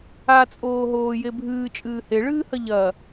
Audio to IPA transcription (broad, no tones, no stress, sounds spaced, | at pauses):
a t͡sʼ oː ɦ oː j e bʱ ɨː t͡ʃʼ ɨː h e ɭ ɨː h ɐ ʎ ɐ